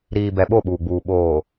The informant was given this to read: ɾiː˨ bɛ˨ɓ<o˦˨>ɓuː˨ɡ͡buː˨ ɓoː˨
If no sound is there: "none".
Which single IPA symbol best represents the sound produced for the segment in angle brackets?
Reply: o˦˨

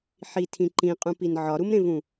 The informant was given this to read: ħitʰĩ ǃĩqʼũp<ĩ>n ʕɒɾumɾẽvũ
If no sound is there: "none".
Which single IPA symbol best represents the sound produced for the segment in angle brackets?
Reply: i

